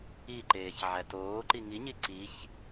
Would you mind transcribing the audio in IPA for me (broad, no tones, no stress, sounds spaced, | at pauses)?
i ǃ eː ç ʕ æ t oː ǃ i ŋ i ɲ i ǀ i ç